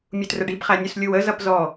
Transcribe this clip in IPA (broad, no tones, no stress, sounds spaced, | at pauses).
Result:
mʲ u t r ə ɖ i b χ æ nʲ u s lʲ u w ə z ʌ p z ɔ